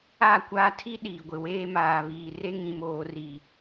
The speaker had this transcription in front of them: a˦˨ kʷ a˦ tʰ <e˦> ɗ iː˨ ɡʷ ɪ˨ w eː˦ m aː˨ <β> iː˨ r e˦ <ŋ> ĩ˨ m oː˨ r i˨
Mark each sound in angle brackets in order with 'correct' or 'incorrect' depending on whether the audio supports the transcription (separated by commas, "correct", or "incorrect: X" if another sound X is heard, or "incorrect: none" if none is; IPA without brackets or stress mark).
incorrect: i˦, correct, correct